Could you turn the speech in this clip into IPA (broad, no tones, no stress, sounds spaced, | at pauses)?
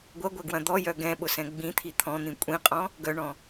ɡʷ ɐ ɡʷ ɛ ɡ w ɐ̃ d̪ ɔ j œ ɡ ɛ̃ ɓ ʊ s ɛ̃ ɡ͡b ĩ t̪ʰ i t̪ʰ ɔ̃ n̪ ĩ kʷʼ ĩ qʼ ɔ̃ | ɡ œ ɳ ɔ̃